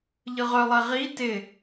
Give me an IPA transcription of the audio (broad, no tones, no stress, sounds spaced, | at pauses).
ʎ ɯ ʁ œ lˠ ɛ ʁ i t ɪ